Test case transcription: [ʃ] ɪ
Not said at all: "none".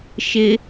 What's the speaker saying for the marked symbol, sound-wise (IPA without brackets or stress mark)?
ʃ